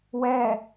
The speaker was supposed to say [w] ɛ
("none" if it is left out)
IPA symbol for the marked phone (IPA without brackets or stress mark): w